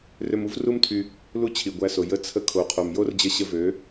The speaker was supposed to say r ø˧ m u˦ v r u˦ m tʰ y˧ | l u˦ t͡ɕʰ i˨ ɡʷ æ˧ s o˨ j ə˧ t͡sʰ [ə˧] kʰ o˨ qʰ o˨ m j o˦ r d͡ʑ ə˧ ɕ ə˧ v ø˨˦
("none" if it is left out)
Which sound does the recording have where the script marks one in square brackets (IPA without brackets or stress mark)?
ə˧